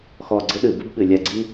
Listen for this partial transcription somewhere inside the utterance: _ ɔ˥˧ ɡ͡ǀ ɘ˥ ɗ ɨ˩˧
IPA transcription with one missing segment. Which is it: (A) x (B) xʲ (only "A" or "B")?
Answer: A